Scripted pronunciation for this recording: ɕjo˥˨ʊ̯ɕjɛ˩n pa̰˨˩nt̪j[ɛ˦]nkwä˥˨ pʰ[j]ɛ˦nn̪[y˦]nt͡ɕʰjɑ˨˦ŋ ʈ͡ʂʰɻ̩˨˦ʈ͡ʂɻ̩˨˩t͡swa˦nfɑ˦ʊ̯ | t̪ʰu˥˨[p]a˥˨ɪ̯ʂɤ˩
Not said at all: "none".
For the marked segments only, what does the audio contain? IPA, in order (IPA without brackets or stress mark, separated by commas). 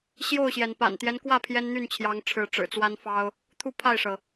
ɛ˦, j, y˥˨, pʰ